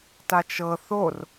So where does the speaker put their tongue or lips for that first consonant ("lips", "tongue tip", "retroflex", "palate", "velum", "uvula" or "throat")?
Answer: tongue tip